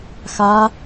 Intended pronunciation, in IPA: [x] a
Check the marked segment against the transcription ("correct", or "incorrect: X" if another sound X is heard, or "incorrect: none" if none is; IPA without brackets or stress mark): correct